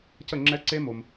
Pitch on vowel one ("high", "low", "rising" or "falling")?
falling